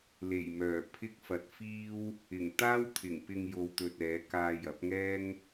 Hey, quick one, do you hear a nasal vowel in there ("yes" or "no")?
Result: no